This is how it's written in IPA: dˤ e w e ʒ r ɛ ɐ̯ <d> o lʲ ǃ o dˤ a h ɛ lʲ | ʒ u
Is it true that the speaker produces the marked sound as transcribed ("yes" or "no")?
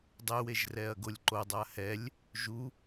no